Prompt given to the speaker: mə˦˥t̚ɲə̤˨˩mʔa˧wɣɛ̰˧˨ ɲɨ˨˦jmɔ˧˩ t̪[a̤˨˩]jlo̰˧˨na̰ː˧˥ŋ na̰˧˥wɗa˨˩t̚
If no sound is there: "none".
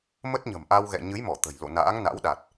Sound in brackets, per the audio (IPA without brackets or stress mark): ə̤˨˩